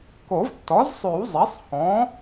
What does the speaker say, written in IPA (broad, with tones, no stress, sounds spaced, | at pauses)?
k o˨˩˦ v tː ɔ˩˥ z sˤ ʉ˨˩˦ w zˤ ɛ˩˥ sˤ h ɔ̃˩˥